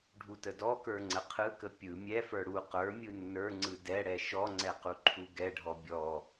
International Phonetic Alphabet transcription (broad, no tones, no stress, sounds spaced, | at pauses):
ɖʱ u t ə d ɔ k ə˞ ŋ͡ǀ ə qʰ ɯ k ə pʲ ɯ mʲ ɛ f ə˞ ɽ u q ə˞ mʲ ɯ nː ə˞ ŋ͡ǀ ɯ d ɛ ɽ ɛ ʃ ɔ ŋ͡ǀ ɛ q u ǃʰ u ɡ ɛ ɖʱ ɔ bʲ ɔ